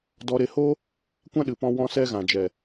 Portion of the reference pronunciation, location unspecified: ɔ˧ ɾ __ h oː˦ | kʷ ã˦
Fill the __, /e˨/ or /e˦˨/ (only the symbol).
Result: e˦˨